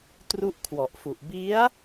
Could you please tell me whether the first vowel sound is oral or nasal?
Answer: oral